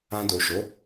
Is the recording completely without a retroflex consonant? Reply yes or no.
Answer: yes